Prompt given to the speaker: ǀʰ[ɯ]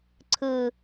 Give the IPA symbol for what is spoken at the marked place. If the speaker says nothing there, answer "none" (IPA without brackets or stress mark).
ɯ